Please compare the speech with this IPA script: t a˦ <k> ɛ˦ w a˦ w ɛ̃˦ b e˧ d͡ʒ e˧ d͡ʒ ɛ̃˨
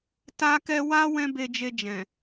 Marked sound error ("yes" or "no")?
no